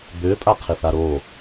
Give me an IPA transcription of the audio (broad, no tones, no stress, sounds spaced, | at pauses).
b ʏː pʼ a qʰ ɪ θ a ɾ o